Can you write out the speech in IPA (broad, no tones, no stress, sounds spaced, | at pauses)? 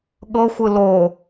ɠ ɤ xʷ ɯ l o